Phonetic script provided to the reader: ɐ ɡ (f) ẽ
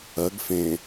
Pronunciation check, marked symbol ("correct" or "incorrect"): correct